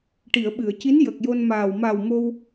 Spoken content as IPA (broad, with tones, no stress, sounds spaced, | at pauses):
ʈ i˨˩˨ ə̯ ɓ ɨ˨˩˨ ə̯ c i˧˥ n j ə˨˩ k̚ j o˧ n m aː˨˩ w m a˨˩ w m o˧ w